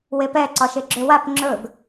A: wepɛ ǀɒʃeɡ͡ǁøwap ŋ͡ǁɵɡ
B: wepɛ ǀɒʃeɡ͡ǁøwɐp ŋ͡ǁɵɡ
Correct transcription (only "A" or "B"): A